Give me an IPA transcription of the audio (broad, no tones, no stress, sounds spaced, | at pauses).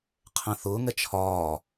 qʰ ɛ̃ θ ʊː ŋ ɛ t͡ʃʰ ɒː